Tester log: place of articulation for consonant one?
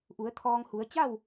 glottal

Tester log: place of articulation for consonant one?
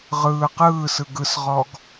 uvular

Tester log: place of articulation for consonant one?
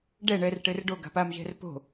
retroflex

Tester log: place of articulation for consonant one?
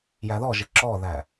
palatal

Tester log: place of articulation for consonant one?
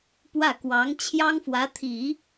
labial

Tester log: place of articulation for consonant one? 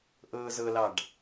glottal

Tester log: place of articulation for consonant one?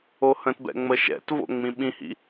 glottal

